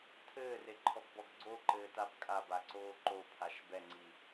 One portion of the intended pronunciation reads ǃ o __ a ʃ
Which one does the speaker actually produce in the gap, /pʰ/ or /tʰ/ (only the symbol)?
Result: pʰ